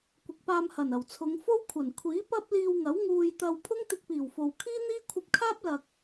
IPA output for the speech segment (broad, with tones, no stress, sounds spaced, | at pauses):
kʷ ɪ˨ k̚ p aː˧ m h ɐ˨˩ n ɐ˨˩ w t͡sʰ ʊ˨˧ ŋ f o˥ w kʷʰ ɐ˨˩ n kʷʰ iː˨˥ p ɐ˥ p̚ l iː˧ w ŋ ɐ˨˥ w ŋ uː˨ j t̪ ɐ˨ w pʰ ʊ˥ ŋ t̪ ɪ˧ k̚ p iː˨˩ w f o˨ w kʰ iː˥ n̪ iː˥ kʷʰ ɐ˧ p̚ kʰ aː˥ p̚ l ɐ˨ k̚